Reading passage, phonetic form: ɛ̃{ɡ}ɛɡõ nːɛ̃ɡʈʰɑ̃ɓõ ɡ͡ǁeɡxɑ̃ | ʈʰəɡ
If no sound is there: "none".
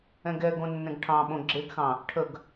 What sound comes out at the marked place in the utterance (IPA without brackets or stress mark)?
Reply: ɡ